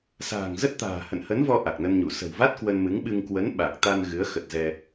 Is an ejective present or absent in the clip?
absent